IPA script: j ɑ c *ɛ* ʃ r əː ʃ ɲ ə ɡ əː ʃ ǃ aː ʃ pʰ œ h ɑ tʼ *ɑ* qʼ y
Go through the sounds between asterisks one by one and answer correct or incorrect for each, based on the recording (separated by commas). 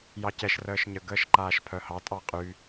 correct, correct